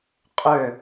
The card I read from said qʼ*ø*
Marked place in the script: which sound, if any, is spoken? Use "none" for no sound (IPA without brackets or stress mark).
ø